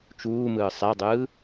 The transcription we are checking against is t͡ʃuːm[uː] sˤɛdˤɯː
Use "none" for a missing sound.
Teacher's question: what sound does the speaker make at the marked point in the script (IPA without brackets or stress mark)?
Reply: ɯː